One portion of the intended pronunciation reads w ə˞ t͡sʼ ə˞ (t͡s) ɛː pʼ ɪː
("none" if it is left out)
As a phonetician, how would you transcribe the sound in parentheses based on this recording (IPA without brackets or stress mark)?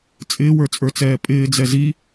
t͡s